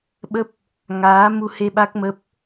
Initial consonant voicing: voiced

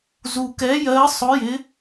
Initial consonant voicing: voiced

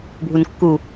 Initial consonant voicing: voiced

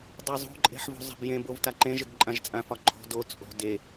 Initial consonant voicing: voiced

